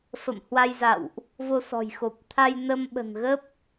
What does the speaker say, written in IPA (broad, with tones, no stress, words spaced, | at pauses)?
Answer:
fə̰˧˨m hwa˧jza̰˧˨wʔ | vo˧sɔ̤˨˩jxo˨˩p̚t̪ʰa˧j nə˧mɓə̤˨˩nɣə˦˥p̚